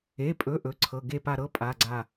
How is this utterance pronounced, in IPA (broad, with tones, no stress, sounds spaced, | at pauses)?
e˩˧˩ pʼ ɵ˩˧˩ ʔ ɵ˩˧˩ ǀʰ ɤ˩˧˩ ɡ e˦˨ p a˦˨ ɾ ɤ˧˥˧ pʼ a˩˧˩ ɡ͡ǀ a˦˨